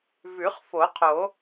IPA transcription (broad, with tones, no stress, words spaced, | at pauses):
vʉ˨˩˦χfo˨˩˦qʰo˨˩˦